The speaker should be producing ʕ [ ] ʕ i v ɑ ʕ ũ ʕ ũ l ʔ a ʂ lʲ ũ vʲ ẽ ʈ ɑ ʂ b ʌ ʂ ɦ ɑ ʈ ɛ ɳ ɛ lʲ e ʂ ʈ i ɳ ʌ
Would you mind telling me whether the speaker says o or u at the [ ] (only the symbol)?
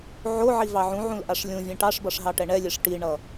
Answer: o